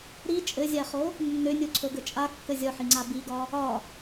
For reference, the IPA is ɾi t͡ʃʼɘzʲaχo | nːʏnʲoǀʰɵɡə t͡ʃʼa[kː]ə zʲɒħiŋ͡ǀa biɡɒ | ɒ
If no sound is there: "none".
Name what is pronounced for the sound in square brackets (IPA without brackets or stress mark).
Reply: kː